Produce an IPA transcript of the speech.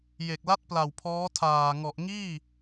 j e˨˩ k̚ l a˦˥ t̚ p l a˨˩ w pʰ ɔː˦˥ tʰ aː˨˩ ŋ ɔ˨˩ ʔ ŋ iː˥˩

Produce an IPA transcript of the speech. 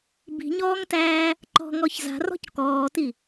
b i̤ ɲ ɔː ŋ t æː | ǃ ɔ̤ ŋ ɔ ç z a̤ r ɔ̤ c k ɔː t i

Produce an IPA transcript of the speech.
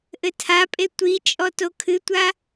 ʔ ɘ tʰ a pʼ e tʷ i t͡ʃʼ ɔ t o kʰ ɨ tʷ a

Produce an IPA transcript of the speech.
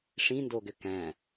ʂ ĩ n d o ɡ ʏ k æ̃

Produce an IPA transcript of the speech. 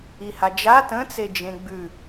i h a d͡ʒ a t ə̃ t͡s e d͡ʒ ẽ ɡ͡b ʉ

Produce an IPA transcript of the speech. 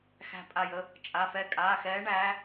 x æ̤˧˩ pʼ a˧˩ j ə˨˦ | t͡ʃʼ a˩˧˩ f ɛ˧˩ kʼ aː˩˧˩ x ɛː˨˦ ɳ æː˨˦

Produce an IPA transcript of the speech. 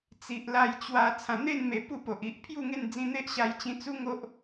t͡s i˨ ʔ l a˧ j t͡ɕ w a˧ t͡sʰ ã˨˩ n̪ e˥˧ n m e˨˩ p u˥˧ p o˨ ʔ i˨ ʔ pʰ j u˥˧ ŋ e˥˧ n d͡z ĩ˧ n̪ e˦ ʔ ɕ a˧ j t͡ɕ ĩ˧ t͡s u˦ ŋ o˦ ʔ

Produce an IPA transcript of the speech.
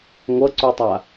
ŋʷ ʌ ǀ u tˤ a

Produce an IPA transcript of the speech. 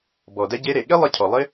b ɔ˩ d ɛ˧ ɟ e˧ ɾ e˩ ɠ e˥ lˠ ɪ˧ cʰ ɔ˩ lˠ ɪ˧

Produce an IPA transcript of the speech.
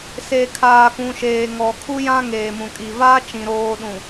s e˨ kʰ aː˨ k ũ˨ ʃ eː˨ ŋ ɔ˨ kʰ u˦ j ã˦ ŋ eː˨ m ũ˨ kʼ i˨ v aː˦ t͡ʃ ĩ˨ ɾ oː˨ ɗ ũ˨

